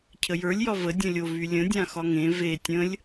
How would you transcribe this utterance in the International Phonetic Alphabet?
cʰəjə˞lʲ jɒvə dʲə̃lʲo vylʲə̃ dʲãxɒŋẽ ve tʲə̃lʲ

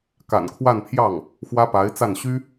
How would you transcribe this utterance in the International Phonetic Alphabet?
ka̰˨˩nkʰwa˥˧npʰjɑ˥˩ŋ | xwä˥pa˧˥ɪ̯t͡sa˥˩n ɕy˥

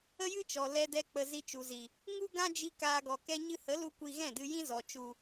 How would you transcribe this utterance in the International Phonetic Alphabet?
ə˦jɨ˦t͡ʃɔ˨ lɛ˧dɛ˧k͡pə˨ zi˧t͡ʃu˨zi˨ | ŋu˦ ɡã˦d͡ʒi˧ kaː˧ɡɔ˨kɛ˦ ɲɨ˧hə˨˦lu˧ kʷi˧ ɣɛ̃˦˨dɨ˧jĩ˦zɔ˨ t͡ʃu˨

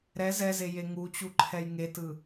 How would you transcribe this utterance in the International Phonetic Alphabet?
ɾɛ zɛzeje ŋut͡ɕu ǃʰɛjŋetɯ

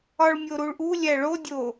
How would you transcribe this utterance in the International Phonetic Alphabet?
ɒɭmʲoɾuɭʔu lʲæɭo dʲo

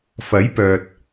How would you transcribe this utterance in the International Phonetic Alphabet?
fɐ˨˥j pœː˨t̚

